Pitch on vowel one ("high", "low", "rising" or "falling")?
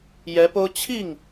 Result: rising